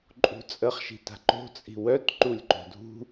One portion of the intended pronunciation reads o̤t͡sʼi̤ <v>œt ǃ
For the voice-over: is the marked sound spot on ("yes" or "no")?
no